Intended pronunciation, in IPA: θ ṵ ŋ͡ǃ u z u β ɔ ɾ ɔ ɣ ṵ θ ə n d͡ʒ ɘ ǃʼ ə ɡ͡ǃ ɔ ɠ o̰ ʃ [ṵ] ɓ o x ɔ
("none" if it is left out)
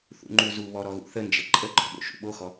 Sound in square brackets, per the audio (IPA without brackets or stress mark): ṵ